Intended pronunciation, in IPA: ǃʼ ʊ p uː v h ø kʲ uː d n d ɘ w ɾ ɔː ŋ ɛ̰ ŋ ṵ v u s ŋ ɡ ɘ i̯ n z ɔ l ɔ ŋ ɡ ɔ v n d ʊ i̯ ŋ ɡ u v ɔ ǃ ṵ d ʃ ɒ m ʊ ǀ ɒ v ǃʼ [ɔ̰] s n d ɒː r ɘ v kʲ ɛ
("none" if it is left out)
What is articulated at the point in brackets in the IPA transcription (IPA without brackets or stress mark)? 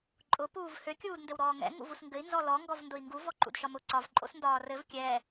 o̰